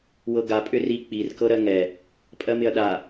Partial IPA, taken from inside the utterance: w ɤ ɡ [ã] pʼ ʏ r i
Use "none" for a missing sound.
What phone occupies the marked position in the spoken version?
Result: a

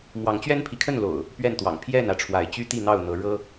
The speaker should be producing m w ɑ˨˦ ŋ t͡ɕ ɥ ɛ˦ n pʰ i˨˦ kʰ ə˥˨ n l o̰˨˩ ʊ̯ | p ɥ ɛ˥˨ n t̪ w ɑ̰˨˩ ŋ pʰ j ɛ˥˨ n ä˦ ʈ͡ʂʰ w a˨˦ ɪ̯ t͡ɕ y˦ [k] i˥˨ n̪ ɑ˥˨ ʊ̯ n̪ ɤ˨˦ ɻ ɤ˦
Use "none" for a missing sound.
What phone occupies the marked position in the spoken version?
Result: t̪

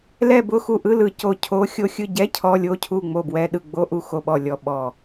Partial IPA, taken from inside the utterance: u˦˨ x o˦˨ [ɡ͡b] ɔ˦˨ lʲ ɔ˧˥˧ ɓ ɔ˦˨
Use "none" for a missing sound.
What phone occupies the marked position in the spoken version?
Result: ɓ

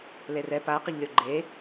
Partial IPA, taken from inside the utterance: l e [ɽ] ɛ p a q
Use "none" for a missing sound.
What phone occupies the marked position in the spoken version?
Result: r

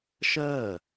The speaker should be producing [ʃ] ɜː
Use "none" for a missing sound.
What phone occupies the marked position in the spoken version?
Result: ʃ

